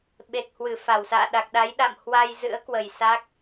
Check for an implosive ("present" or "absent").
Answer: present